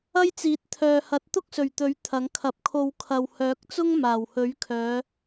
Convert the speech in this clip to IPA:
ɐ˥jt͡siː˨˥t̚t̪ʰœː˨hɐ˨˥t̚ t̪ʊ˥k̚sɵ˨˩ɥ t̪ɵ˨˥ɥ t̪ʰɐ˨˥ŋkʰɐ˧p̚ kʰo˧w kʰɐ˨whœː˨˥k̚t͡sʊ˥ŋ maː˨˩whɵ˨˥ɥkʰœː˨˧

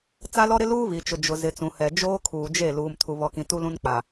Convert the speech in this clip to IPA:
t͡sa˦lɔ˦ɾɪ˦ luː˦βi˨t͡ʃʊ˨ d͡ʒʊ˨ zɪ˨t͡sũ˨hɛ˨ d͡ʒoː˦kʰuː˨d͡ʒe˦˨ luː˨m tʰu˨βɔ˨kĩ˨ tu˦lũ˦nk͡pa˨

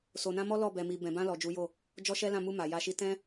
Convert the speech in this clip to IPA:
so˨nã˧ mɔ˦lɔ˦˨ bɛ˨mi˨ bɛ̃˨bã˧ lɔ˨d͡ʒu˨˦jo˦˨ | d͡ʒɔ˦ʃɛ˦lã˦˨ mu˧ ma˨ja˧ʃi˦ tɛ̃˦

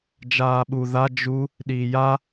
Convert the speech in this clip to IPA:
d͡ʒaːɓu ða d͡ʒu | ɗiːja

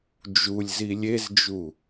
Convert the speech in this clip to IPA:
d͡ʒulʲ zilʲezd͡ʒu

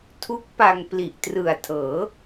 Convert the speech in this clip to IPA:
tʰu˦˥k̚pa˧ŋ pli˨˩ʔtrɯ˨˩a̯ tʰɤː˩˦

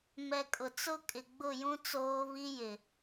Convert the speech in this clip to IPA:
mɛ˨kʼʊ˨t͡sʊ˦ kʼɪ˨ɡ͡bʊ˦˨jũ˦ t͡soː˦βi˦jɪ˨

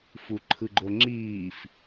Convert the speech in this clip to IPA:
fuǃʰɯɡ͡ǃoŋ͡ǁiːf

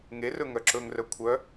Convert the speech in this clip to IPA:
ŋerɵ ŋœǁɵŋrœ kʷʰœ

